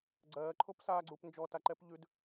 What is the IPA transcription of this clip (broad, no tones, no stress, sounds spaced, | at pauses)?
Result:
ɡ͡ǀ ɜː ǃʰ o p s aː ɡ͡ǀ uː p n d͡ʒ ɔ t a ǃ ɛ p ʎ ʉ d